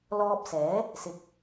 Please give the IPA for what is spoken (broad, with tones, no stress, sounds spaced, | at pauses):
l ɔː˧ p̚ s ɛː˨˥ | s ɪ˨˥ k̚